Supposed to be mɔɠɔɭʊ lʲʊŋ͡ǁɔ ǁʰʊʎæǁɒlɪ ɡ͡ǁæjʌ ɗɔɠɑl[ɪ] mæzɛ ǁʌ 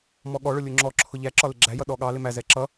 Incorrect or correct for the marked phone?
correct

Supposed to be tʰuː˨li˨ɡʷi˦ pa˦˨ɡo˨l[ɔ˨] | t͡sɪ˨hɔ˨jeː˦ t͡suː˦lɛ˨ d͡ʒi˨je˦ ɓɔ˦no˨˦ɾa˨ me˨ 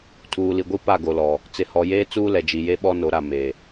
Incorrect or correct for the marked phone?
correct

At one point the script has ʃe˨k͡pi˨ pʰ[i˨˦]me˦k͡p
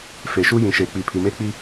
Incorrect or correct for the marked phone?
incorrect: i˨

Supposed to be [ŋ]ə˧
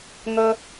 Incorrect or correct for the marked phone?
correct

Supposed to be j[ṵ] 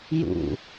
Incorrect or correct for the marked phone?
correct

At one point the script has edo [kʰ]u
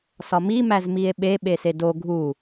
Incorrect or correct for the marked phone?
incorrect: ɡʱ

